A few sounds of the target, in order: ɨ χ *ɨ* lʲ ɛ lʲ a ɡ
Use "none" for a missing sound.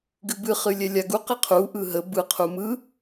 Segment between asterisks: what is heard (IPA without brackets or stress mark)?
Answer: ɨ